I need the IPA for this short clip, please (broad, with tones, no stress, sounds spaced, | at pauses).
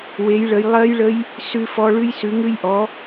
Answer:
w e˨˦ j ɭ ə˨˦ j lˠ ɜ˦˥ j ɭ ə˦˥ j | s ʉ˦˥ f ɔ˦˥ ɭ ʉ˦˥ j s ʉ˨˦ ŋ ʉ˦˥ j ʔ ɔ˨˦